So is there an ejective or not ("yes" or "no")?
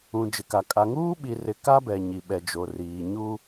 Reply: yes